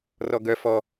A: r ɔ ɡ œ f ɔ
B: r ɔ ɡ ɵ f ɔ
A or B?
A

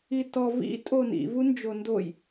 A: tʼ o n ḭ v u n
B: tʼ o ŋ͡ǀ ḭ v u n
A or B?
A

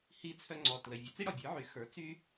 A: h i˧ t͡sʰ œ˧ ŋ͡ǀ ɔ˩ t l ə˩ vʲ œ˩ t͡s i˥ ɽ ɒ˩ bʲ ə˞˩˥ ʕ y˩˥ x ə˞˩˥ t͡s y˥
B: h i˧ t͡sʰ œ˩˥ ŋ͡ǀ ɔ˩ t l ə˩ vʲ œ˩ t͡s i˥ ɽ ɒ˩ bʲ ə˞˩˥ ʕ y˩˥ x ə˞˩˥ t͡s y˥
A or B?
A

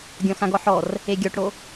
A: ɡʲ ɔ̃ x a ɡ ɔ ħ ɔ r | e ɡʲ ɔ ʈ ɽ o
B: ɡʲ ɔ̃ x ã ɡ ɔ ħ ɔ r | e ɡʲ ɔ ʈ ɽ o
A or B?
B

